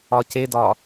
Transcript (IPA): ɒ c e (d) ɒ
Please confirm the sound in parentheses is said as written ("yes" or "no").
yes